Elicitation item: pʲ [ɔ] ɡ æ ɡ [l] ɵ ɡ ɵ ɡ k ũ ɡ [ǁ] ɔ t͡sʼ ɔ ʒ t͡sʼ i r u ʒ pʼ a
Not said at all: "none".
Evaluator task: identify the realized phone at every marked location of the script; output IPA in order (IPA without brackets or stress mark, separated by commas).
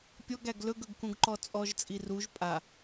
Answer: ɔ, l, ǃ